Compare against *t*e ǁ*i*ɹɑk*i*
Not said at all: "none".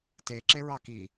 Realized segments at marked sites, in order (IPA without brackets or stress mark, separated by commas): t, e, i